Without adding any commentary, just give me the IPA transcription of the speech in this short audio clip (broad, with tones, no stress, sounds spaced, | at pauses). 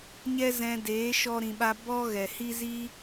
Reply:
ɲ ɛ˦ z ɛ̃˧ d eː˨˦ ʃ ɔ˦ ɾ ĩ˧ ɓ a˦ b ɔ˦ ɣ ɛ˨ h i˦ z i˦